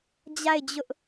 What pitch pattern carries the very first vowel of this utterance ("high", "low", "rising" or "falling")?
falling